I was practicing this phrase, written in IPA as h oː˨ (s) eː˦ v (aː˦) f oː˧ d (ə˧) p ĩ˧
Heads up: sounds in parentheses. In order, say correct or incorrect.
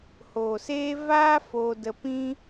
correct, correct, correct

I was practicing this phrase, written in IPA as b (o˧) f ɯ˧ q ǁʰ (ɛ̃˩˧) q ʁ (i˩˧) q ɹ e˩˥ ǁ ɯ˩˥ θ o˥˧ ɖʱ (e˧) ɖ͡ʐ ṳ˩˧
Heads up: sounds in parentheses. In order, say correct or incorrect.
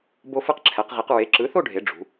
correct, incorrect: ɛ˩˧, correct, incorrect: e˩˧

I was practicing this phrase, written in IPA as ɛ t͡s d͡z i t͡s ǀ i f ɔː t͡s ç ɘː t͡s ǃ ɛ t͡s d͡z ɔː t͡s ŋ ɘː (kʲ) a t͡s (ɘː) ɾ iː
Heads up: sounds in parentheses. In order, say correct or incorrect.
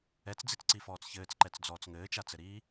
incorrect: t͡ʃ, incorrect: ɘ

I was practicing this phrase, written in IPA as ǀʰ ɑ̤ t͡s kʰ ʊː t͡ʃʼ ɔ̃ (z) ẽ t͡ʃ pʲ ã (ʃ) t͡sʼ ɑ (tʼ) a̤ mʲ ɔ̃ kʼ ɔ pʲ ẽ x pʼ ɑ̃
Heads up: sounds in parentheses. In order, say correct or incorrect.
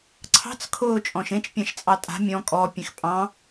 incorrect: ʃ, correct, correct

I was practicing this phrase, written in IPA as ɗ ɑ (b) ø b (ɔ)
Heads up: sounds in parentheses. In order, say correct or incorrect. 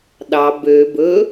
correct, incorrect: ɵ

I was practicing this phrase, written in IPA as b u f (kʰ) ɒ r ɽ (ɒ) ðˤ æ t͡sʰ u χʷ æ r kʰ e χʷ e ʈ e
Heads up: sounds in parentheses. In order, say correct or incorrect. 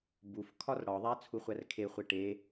correct, correct

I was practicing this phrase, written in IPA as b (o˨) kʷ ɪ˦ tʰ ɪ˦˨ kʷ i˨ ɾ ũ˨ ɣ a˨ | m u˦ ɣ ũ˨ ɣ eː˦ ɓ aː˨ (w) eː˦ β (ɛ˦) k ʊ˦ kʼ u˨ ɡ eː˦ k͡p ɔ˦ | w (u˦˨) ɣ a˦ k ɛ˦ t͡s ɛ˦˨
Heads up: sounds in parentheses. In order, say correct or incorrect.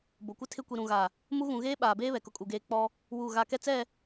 correct, incorrect: b, incorrect: ɛ˨, correct

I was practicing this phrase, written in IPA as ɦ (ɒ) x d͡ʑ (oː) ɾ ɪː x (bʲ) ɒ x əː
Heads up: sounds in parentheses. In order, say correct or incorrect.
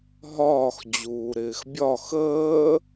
incorrect: ɒː, incorrect: uː, correct

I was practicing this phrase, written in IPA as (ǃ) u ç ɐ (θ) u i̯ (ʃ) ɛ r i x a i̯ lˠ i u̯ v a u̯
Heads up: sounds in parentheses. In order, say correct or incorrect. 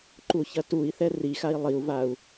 correct, incorrect: t, incorrect: θ

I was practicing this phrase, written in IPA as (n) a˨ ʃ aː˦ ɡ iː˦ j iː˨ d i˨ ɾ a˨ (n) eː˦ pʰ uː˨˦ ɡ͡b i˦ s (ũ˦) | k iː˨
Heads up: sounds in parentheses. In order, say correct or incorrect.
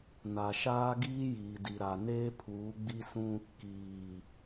correct, correct, correct

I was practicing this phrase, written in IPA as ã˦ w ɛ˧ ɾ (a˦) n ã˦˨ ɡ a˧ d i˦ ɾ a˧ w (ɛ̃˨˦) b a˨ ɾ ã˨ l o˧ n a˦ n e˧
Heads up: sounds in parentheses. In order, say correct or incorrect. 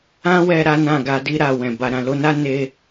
correct, incorrect: ɛ̃˨

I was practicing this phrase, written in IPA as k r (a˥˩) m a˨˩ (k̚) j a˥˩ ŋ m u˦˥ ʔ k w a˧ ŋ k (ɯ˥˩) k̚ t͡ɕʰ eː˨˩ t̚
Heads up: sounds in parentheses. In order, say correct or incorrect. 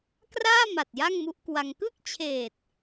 incorrect: aː˥˩, incorrect: t̚, correct

